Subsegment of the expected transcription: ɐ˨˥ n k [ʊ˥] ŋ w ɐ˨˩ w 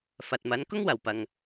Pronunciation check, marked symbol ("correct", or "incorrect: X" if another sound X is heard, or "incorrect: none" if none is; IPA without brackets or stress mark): correct